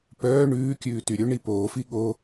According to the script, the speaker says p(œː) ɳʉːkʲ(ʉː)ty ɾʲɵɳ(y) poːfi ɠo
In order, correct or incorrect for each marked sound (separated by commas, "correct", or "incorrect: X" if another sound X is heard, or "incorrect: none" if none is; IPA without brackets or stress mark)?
correct, correct, incorrect: i